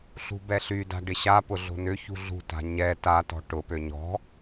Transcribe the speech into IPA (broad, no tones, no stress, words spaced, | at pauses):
ɬṳbɛɬyda̤ ɖɪɕapʊ ɮo̤nʏçṳ ɮṳta̤ ɲɛ tatɔ̤ ʈʊpø ɲɔ̤